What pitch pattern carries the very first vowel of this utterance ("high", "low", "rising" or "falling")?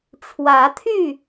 rising